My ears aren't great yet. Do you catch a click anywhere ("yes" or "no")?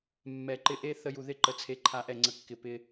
yes